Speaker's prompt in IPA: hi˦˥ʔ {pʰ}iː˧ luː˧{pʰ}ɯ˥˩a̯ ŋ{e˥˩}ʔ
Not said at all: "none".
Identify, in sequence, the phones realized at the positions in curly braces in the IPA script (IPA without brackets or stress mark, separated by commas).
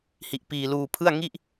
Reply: p, pʰ, i˥˩